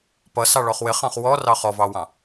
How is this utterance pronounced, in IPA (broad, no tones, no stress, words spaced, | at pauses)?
pʌsɑ ɭɔχwɪχɑ̃χ wɔrɑ χɔvɑwɑ̃